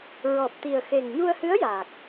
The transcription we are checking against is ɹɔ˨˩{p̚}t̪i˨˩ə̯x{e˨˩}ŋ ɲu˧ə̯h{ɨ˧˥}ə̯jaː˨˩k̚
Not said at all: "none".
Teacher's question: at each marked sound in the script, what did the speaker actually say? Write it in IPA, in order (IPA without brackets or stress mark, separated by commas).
p̚, e˨˩, ɨ˧˥